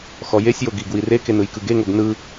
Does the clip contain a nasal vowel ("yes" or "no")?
no